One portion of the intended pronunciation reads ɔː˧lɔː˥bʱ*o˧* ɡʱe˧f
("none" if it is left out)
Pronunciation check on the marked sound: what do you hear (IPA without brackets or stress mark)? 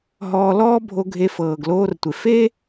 o˧